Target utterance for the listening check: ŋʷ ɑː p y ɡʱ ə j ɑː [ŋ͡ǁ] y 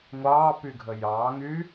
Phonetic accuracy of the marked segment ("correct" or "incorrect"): incorrect